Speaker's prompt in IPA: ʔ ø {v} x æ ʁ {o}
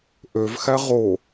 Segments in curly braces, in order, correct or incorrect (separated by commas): correct, correct